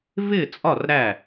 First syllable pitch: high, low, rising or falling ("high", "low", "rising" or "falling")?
falling